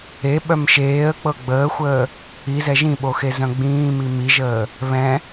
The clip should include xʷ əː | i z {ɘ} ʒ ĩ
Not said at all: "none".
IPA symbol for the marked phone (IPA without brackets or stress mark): ɛ